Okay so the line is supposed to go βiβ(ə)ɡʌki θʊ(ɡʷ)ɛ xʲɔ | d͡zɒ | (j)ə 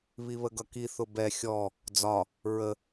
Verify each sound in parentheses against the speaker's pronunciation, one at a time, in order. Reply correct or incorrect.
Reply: correct, incorrect: b, incorrect: ɹ

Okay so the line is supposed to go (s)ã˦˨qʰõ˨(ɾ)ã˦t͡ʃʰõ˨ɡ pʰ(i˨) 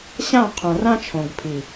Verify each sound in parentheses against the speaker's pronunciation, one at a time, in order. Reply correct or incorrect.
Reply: incorrect: ɕ, incorrect: r, correct

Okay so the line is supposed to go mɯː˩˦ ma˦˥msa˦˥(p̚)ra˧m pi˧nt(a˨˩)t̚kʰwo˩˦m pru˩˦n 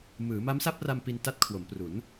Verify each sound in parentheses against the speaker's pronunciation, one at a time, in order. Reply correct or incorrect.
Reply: correct, incorrect: a˦˥

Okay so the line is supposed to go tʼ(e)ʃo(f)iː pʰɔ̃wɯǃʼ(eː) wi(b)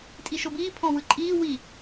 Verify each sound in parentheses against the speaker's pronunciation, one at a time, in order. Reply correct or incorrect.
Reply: incorrect: i, incorrect: b, incorrect: iː, incorrect: none

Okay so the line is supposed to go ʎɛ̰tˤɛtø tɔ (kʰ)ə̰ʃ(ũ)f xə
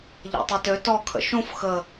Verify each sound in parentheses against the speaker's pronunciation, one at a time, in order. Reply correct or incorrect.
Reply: correct, correct

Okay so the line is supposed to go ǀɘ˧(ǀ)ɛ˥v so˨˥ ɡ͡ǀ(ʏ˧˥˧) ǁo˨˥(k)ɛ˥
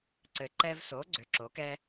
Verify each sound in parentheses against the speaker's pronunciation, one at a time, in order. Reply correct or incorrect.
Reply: incorrect: ǃ, incorrect: ʏ˨˥, correct

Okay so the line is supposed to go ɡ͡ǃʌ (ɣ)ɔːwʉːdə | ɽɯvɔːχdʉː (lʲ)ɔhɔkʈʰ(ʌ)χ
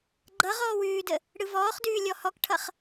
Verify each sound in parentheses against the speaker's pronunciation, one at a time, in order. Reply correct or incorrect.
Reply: incorrect: ʁ, correct, correct

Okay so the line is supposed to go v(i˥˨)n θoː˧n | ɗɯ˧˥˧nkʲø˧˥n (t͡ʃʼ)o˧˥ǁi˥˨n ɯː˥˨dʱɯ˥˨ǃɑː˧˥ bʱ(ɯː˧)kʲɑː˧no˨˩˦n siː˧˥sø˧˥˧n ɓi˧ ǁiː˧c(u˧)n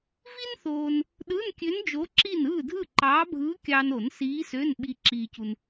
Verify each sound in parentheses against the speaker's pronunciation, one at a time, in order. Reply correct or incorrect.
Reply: incorrect: i˥, incorrect: d͡ʒ, incorrect: ɯː˧˥, correct

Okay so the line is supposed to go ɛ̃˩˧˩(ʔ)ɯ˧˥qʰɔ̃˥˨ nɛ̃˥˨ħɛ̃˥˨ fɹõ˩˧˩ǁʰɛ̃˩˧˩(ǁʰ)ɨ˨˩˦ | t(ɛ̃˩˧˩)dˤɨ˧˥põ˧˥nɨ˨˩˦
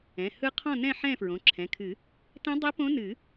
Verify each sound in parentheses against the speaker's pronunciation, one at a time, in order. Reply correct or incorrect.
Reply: incorrect: h, incorrect: kʰ, incorrect: ɛ̃˧˥

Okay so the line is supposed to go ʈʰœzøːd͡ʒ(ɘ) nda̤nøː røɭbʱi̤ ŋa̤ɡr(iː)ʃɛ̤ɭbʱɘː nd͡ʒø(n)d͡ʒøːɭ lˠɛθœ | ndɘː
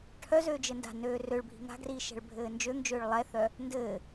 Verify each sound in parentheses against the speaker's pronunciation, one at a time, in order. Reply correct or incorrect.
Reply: correct, correct, incorrect: ŋ

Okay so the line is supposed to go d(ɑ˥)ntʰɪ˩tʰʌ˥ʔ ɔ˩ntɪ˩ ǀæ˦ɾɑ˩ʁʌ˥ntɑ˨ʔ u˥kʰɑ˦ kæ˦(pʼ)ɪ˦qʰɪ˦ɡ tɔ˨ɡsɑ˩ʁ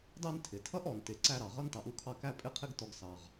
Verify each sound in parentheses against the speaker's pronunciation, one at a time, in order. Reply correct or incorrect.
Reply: incorrect: ɑ˦, correct

